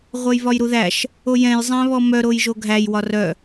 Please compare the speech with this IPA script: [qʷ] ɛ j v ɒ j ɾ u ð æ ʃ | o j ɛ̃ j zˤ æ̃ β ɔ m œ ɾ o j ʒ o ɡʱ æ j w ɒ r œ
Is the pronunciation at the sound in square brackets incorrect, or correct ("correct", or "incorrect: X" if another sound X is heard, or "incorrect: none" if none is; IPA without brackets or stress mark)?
incorrect: ʁʷ